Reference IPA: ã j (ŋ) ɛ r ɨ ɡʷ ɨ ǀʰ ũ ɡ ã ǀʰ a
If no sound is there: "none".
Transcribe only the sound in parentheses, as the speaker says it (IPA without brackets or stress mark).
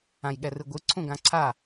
ɠ